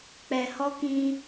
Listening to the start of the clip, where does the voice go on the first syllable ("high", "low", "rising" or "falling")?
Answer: low